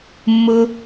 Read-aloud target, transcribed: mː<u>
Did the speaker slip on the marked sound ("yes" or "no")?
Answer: yes